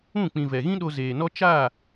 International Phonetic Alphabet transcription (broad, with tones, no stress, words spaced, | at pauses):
ũ˦˨k͡pĩ˨ vɛ˨ɣĩ˦ɗo˧ zeː˨nɔ˦ t͡ʃa˦˨